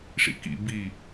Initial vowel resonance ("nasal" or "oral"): oral